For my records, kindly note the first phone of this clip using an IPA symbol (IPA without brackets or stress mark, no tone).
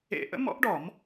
ḛ